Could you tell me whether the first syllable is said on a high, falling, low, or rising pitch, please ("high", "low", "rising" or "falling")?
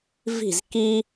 falling